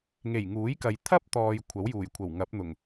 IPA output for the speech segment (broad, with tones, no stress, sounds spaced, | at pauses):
ŋ e˨˩ j ŋ uː˨˥ j k ɐ˨ j t̪ʰ ɐ˥ p̚ t̪ ɔː˨ j kʷʰ ɐ˨˥ w j uː˨˩ j kʷʰ ɐ˨˩ w ŋ ɐ˨˥ p̚ n̪ ʊ˨˩ ŋ